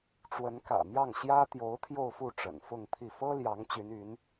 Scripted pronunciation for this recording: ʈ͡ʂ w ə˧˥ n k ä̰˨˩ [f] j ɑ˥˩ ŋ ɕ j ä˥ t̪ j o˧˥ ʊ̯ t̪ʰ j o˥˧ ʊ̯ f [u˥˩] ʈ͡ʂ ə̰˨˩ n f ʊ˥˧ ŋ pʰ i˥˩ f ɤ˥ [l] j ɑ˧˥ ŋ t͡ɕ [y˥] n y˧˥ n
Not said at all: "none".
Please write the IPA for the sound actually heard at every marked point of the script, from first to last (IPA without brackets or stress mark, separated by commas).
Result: m, u˥˩, l, y˧˥